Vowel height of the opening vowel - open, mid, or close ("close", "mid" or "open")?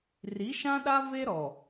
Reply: close